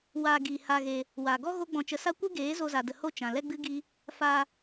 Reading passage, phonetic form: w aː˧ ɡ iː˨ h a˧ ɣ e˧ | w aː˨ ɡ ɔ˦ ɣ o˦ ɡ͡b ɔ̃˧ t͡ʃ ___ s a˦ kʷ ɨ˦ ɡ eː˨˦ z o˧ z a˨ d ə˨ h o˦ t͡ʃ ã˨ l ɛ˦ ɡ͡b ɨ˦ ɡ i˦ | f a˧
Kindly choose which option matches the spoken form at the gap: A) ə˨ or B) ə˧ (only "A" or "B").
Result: B